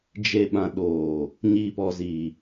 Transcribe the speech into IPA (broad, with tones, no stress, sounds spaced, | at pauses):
d͡ʒ e˨ ɓ ã˨ ɗ oː˨ | ɲ iː˨ p ɔ˨ z iː˨